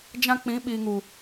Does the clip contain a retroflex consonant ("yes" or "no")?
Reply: no